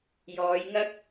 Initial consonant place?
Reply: palatal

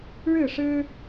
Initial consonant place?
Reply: retroflex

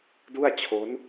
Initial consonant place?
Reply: alveolar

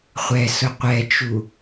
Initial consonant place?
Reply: uvular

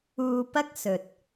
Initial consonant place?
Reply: labial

